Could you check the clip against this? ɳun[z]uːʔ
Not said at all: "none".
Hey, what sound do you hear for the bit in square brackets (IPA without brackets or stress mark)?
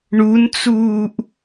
t͡s